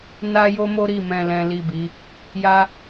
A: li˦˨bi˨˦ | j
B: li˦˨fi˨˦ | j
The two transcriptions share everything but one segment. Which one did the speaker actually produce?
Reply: A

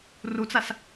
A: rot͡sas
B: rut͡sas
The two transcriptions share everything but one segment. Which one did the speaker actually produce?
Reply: B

